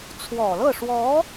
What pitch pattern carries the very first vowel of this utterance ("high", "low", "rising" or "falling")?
low